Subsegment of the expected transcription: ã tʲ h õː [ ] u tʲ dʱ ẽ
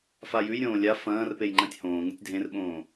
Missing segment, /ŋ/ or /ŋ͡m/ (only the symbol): ŋ